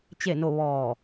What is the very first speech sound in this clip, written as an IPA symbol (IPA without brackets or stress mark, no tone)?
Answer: t͡ɕ